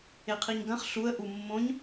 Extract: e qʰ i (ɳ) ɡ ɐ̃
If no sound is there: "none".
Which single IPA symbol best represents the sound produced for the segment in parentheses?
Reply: ɲ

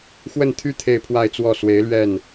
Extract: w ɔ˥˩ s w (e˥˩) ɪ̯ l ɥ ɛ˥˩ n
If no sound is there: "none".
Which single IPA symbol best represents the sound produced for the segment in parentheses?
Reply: e˧˥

